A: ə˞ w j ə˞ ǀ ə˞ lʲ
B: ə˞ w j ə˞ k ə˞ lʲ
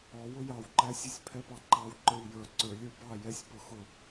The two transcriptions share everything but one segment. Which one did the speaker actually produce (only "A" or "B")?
A